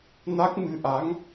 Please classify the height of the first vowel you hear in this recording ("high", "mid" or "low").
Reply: low